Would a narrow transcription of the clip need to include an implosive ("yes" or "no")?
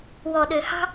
yes